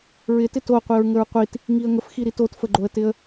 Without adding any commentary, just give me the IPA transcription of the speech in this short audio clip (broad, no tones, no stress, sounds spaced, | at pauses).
ɹ ɪ t ɪ t o qʷ i ɹ ŋ ə ɹ qʷ i t | ŋ i ə̯ ŋ ə f x i ɾ i t o t f ə ɡ͡ǃ o ə̯ t ɪ ə̯